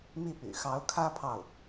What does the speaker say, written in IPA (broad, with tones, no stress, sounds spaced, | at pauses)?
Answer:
m i˥˩ p y̰˨˩ x ɑ˧˥ ʊ̯ kʰ ä˥ pʰ ɑ˥˩ ʊ̯